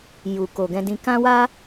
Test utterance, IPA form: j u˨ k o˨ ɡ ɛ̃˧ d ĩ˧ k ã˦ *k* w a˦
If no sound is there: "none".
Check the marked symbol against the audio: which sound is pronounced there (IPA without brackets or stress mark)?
none